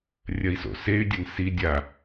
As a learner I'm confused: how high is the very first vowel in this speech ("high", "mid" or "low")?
low